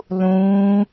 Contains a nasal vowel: yes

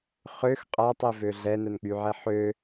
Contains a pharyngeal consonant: yes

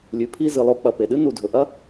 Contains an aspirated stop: yes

